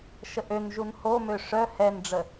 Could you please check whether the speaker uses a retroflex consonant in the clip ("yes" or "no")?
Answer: yes